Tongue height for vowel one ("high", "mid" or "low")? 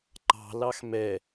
low